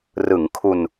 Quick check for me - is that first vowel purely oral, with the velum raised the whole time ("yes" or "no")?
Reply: yes